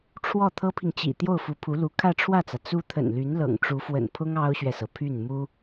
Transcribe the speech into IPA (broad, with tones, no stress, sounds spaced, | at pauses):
ʈ͡ʂʰ w ɔ˥˩ t̪ʰ ɤ˥ pʰ i˨ ŋ t͡ɕ ḭ˨˩ t̪ j o˥˩ ʊ̯ f u˧˥ pʰ u˧˥ l u˧˥ kʰ ä˥˧ ʈ͡ʂʰ w ä˥˩ t͡s ä˩ t͡s u˥ t̪ʰ ə̰˨˩ n l y˧˥ n l ɤ̰˨˩ ŋ ʈ͡ʂ u˧˥ f w ə̰˨˩ n pʰ ʊ˥ ŋ ɑ˥ ʊ̯ ɕ ɥ ɛ˨ s ɤ˩ pʰ y˥˩ n m u˥